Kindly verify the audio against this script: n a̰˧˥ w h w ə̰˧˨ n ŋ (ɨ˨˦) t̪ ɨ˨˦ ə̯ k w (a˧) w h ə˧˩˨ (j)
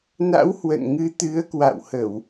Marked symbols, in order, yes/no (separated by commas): yes, no, no